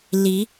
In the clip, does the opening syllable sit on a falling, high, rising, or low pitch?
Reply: rising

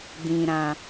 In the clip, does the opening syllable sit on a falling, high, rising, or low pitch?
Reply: low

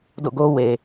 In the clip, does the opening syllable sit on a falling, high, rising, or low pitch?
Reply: falling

